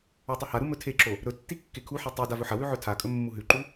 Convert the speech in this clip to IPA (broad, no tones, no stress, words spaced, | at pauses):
atˤɨhaɾu mɵtʰeǁo | ɾɵtːi kːekʰuħi tˤu davɵħɐwʉ ʕɵtʰakʼɵ mːuɦʉǃu